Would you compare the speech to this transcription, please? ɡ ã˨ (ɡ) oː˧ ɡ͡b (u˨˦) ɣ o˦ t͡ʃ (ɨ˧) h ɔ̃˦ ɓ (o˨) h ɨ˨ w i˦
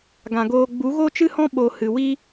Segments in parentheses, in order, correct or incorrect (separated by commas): correct, correct, incorrect, correct